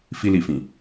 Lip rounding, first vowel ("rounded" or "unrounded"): unrounded